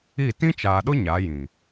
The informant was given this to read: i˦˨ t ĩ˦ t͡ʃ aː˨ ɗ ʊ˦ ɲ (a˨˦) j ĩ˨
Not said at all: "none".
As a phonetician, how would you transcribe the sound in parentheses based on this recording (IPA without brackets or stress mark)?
a˨˦